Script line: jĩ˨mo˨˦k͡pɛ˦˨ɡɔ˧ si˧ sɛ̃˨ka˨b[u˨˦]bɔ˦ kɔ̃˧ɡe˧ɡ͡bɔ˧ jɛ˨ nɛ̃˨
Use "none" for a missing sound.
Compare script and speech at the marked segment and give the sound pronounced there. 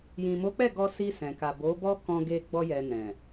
o˨˦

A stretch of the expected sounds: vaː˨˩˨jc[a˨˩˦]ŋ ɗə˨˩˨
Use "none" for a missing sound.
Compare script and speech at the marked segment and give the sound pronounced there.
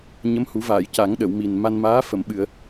a˨˩˦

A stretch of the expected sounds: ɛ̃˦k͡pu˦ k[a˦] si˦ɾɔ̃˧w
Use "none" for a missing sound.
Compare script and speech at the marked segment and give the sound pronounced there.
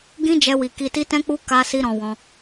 a˦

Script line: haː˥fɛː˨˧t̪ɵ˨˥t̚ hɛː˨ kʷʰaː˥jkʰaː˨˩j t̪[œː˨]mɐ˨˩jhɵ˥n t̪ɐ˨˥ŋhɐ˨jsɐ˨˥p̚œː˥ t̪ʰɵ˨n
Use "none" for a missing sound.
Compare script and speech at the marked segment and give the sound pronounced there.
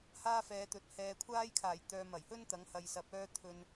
œː˨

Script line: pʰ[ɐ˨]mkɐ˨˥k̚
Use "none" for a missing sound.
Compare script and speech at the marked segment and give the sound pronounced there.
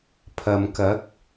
ɐ˨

